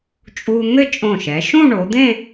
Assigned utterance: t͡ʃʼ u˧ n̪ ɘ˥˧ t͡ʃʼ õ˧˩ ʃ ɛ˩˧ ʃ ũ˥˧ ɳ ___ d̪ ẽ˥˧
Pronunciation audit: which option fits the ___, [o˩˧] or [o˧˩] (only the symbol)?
o˩˧